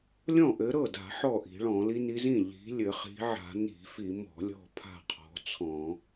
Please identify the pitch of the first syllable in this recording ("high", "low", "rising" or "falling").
falling